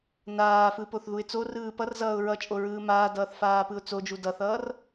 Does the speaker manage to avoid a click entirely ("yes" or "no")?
yes